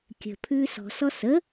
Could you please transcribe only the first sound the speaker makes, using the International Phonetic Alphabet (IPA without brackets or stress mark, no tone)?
kʲ